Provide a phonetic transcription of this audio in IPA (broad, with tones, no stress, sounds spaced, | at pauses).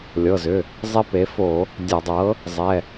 lʲ ɤ˩˧˩ z ʏ˩˧˩ | zˤ e˦ p e˩˥ f o˧˩˧ | dʲ a˧˩˧ dˤ ɤ˩˥ | zˤ ɛ˩˧˩